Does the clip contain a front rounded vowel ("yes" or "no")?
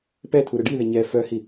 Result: yes